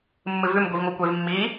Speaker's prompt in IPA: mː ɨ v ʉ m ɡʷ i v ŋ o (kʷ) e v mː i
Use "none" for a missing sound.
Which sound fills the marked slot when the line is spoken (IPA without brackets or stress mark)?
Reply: kʷ